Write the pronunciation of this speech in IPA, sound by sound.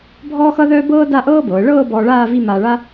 bʱ ɔː˥ x ʌ˥ ð œː˥ b ɤː˥ d a˥˧ ʔ ɤː˥ b ɤː˩˧ ɭ ɤː˥˧ b ɔː˧ ɭ aː˥˧ v i˥˧ m aː˧ ɭ a˥

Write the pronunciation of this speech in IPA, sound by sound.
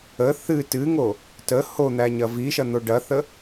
ə θ ɨ t ɨ ŋ o | t ə h o n̪ æ ɲ ɐ v i ʃ ɐ n̪ o ɖ ɐ θ ə

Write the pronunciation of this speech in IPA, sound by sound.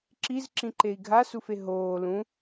ǁ i z ǁ ĩ ǃ e i̯ ɡʱ a s u f e ɦ oː l ũ

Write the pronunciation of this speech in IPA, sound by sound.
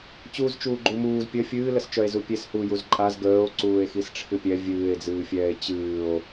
t͡ɕ uː z t͡ʃ uː ɡ͡ǃ u m uː z pʲ ə fʲ ɨː l ə s t͡ʃ œ e̯ z u pʲ e s h u j u z ǃʼ a z ɡ əː o̯ ǀ uː e̯ x i s ʈ͡ʂʰ ɨ pʲ ɛ vʲ ɨː e̯ d͡z ɨː fʲ ɛː e̯ t͡ɕ ɨː o̯

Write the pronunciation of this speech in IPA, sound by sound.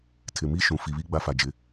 tʰ ɪ˨ m iː˦ ʃ ũ˨ f i˨ β i˦ ɡ͡b a˦ f a˨ d͡ʒ ɪ˨˦

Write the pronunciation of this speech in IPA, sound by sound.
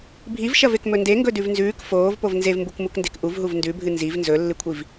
bʱ i v ʃ ɐ v e k m ɵ n d e ŋ ɡ ɵ d ʉ v n z ʉː k f oː v p o v n z e v m b u k m u k n d e̤ k ʔ u v ɦ u v n d ʉ bʱ ɨ n z i v n z ɵ lː ɨ kʷʰ i v

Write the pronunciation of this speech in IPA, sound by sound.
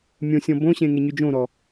mʲ õ sʲ ɔ̃ b õ ɕ ẽ ŋ e ɲ y d͡ʒ õ ɾ ɔ

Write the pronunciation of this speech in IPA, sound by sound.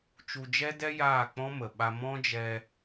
t͡ʃ u˧ d͡ʒ ɛ˦ d ɛ˦ j aː˦˨ k͡p ɔ̃˦ m ə˨ ɓ a˧ m ɔ̃˦ d͡ʒ ɛ˧

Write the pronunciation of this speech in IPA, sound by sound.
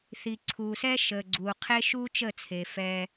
θ i˨ ǀʰ uː˨ s ɛ˦ ʃ əː˨ ɡ͡ǀ uː˨ qʰ e˦ ʃ uː˦ t͡ʃ ə˦˨ t͡sʰ e˨ f ɛ˦

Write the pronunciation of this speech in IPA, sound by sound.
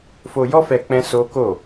f o˧ j ɔ˦ f ɛ˧ k͡p ɛ̃˦ s o˦ k o˦˨

